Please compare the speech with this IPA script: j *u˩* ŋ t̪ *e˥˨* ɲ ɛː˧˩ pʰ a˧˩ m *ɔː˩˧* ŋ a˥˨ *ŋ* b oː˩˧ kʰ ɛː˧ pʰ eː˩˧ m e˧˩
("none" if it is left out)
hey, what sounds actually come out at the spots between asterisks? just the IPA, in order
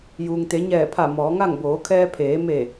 uː˩, e˩˧, ɔː˩˧, ŋ

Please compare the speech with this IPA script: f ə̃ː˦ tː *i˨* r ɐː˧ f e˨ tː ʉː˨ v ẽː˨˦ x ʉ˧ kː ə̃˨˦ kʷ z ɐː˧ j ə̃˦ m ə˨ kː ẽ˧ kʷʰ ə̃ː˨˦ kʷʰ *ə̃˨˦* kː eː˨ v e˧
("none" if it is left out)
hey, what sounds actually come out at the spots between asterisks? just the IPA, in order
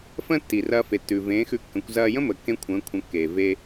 i˨, ə̃˨˦

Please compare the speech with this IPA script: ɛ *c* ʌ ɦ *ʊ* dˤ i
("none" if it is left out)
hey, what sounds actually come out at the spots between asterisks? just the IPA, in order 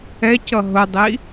c, ʊ

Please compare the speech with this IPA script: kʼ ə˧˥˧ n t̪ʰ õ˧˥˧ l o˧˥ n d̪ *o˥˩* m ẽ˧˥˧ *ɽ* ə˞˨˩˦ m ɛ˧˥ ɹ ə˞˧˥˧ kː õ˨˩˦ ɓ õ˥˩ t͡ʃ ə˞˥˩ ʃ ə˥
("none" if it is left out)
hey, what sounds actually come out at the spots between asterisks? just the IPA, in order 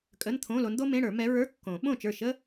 o˥, ɽ

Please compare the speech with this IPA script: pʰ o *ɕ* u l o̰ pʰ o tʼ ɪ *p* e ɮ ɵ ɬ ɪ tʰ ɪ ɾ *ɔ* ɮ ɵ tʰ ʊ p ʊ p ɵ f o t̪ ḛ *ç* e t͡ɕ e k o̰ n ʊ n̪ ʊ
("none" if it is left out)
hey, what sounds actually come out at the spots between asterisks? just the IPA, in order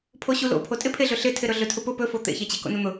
ɕ, pʰ, ɵ, ç

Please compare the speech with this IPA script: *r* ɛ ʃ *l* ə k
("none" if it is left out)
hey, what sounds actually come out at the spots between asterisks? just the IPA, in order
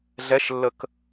ɮ, lː

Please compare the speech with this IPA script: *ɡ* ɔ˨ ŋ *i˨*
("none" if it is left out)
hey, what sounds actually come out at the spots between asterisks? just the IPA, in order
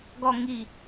ɡ, i˨

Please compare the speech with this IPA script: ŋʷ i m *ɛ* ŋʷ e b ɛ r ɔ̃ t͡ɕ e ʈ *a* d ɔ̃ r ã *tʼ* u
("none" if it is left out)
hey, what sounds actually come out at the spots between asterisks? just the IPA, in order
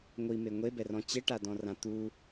e, a, t̪

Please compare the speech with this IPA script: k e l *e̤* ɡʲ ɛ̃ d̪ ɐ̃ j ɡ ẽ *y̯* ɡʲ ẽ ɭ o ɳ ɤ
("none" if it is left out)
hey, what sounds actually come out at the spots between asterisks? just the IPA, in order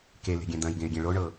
e̤, y̯

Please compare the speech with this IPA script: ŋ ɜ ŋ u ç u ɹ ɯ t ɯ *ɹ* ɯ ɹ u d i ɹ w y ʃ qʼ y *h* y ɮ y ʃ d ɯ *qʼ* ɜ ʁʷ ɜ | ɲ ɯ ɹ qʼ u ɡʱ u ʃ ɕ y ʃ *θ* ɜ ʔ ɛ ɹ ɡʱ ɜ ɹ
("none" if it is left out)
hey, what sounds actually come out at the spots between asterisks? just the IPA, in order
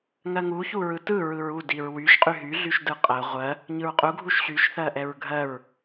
ɹ, ɦ, qʼ, θ

